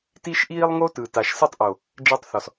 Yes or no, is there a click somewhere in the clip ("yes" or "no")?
no